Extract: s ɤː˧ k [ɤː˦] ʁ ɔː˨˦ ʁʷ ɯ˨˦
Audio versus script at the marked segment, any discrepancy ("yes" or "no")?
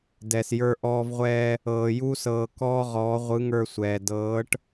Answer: yes